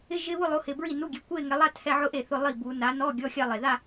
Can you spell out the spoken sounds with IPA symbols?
ɪ˧˥˧ʒɪ˧˥˧βʊ˥˧ lˠo˨˦hɪ˨˩ bɹi˥˩nu˧˥˧ɡʲe˨˦ kʷe˥˧ŋɛ˨˦lˠa˥˧ tʰɛ˧˥˧ʕʊ˥˧ʔe˥˩θʊ˧˥˧ lˠi˥˩bu˨˦ na˨˦nɔ˧˥˧ ɡʲɔ˧˥˧xʲa˥˧lˠe˨˩ ða˥˧

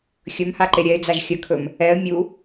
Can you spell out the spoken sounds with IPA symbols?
xʲɵmhaǃe ɾʲɛɪ̯d͡zaʒ xʲəkʰɵm | ɛə̯ mʲu

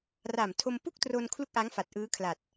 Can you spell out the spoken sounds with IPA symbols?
ra˨˩mtʰo˧mpu˥˩k̚tro˧n kʰlu˥˩k̚ʔa˦˥ŋfa˨˩t̚ ʔɯː˦˥kʰla˨˩t̚

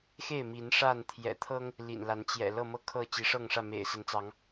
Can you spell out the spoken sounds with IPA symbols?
xe˥˨ɪ̯mi˨˦n ʂa˥˨nt̪ʰjɛ̰˨˩ t̪ʰɤ˦ŋ | lḭ˨˩nla˨˦n t͡ɕjɛ̰˨˩ lɤ˥˨mɤ˦kʰɤ˥˨ t͡ɕi˨˦ʂɤ˥˨ŋʂä˥˨ mḛ˨˩ɪ̯sə˨˦nt͡sɑ˨˦ŋ

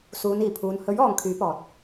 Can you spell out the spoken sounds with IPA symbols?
suː˨˧niː˨˩pʰuː˨˧n hɵ˨˥ɥ ɔː˨˧ŋkʰyː˨˥pɔː˨t̚

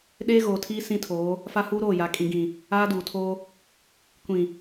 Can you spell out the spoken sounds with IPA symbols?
ɗeː˦ɣoː˨tʰiː˦ sĩ˦tʰoː˨˦ | fa˦huː˦ɾoː˦˨ja˨˦ kʼĩ˨ɡĩ˨ | aː˦duː˨tʰoː˦ | kʷĩ˨

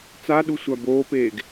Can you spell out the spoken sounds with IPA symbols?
t͡saɗu sʷaboːpeːɡ

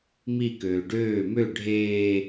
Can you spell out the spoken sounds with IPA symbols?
mi køːɖøː mø ɖʱeː

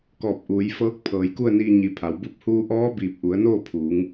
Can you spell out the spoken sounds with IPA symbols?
kɔː˧˩p̚ʔuː˩˧j fɤː˧˥k̚pʰɤː˩˧jku˥˨ə̯niː˧ ɲi˩˧ pʰa˩˧wbu˥˨p̚ huː˧ʔɔː˧˥ biː˧˩p̚ʔu˩˧ə̯noː˥˨pʰuː˩˧ŋ

